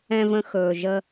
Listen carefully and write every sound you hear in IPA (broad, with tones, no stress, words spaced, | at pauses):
ɛ̃˨və̃˨xɵː˩ʒə˨